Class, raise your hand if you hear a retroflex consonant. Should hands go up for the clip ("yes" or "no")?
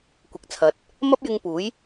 no